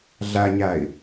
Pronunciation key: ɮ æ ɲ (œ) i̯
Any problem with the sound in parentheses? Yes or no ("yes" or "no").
yes